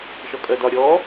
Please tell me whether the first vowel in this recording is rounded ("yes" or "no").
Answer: yes